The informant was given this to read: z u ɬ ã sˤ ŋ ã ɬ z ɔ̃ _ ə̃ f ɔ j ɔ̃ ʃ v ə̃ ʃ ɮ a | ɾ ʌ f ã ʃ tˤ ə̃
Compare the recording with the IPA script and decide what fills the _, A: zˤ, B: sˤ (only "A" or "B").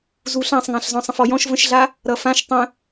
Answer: B